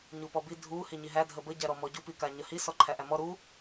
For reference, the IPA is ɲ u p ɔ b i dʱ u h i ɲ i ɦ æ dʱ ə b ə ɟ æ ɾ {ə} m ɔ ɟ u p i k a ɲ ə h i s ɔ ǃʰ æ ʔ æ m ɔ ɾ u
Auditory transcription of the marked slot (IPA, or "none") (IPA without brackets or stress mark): ɔ